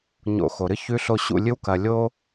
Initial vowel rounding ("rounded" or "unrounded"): rounded